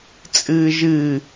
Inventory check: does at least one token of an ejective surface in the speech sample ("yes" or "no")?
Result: yes